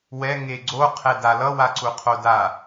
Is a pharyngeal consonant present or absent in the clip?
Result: absent